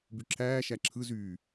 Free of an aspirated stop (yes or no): no